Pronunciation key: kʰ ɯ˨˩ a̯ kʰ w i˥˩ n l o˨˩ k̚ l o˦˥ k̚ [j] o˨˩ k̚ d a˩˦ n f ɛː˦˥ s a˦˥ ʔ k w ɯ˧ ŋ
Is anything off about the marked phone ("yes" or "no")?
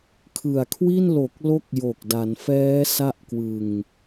no